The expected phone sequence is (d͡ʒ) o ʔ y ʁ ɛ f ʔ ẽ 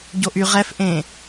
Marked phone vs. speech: incorrect: ɟ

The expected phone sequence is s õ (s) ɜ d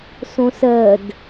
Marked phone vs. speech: correct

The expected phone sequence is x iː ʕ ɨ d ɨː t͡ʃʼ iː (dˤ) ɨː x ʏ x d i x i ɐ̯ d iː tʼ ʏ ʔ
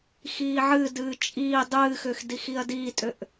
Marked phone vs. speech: correct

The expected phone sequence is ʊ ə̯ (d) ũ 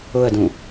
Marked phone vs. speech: correct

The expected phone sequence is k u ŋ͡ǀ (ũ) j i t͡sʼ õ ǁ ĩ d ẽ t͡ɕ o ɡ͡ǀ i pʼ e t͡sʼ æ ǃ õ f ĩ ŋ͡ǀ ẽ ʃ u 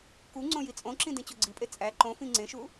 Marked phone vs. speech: incorrect: õ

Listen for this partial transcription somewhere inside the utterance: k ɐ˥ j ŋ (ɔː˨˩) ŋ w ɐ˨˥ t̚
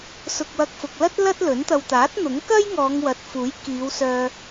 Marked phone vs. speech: incorrect: ɔː˨˧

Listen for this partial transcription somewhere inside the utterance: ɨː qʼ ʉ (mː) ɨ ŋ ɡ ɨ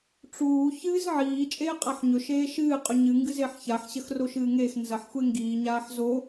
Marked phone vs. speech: incorrect: ɲ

